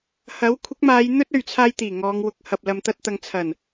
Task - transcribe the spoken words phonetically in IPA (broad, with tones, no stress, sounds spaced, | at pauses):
h ɐ˨˥ w kʷʰ ɪ˨˥ k̚ m aː˨˧ j n̪ ɵ˥ t̚ ɵ˨ ɥ t͡sʰ aː˧ j t̪ iː˨˩ ŋ ɔː˨˧ ŋ w ʊ˨˥ k̚ h ɐ˨ p̚ l ɐ˨ m t̪ ɐ˧ t̚ t̪ ɐ˨ ŋ t͡sʰ ɐ˨˩ n